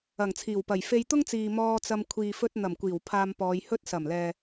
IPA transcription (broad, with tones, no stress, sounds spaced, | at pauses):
ɐ˨˩ ŋ t͡sʰ iː˨˩ w p ɐ˨˩ j f e˧ j t̪ ʊ˥ ŋ t͡s iː˨ m ɔː˧ t͡s ɐ˧ m kʷʰ iː˨ f ɵ˧ t̚ n̪ ɐ˨˩ m kʷ iː˨˩ w pʰ aː˧ m p ɔː˨˧ j h ɵ˥ t̚ s ɐ˨˩ m l ɛː˨